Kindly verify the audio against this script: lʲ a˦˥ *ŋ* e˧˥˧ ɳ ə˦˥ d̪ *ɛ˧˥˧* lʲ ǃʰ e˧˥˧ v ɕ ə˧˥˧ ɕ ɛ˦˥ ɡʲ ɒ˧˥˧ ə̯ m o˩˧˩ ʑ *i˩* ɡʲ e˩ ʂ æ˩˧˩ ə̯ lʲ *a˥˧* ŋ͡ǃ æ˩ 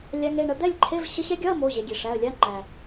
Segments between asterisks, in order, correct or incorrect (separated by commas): correct, incorrect, incorrect, incorrect